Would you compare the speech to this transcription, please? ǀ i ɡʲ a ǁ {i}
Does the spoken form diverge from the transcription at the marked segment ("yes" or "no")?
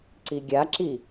no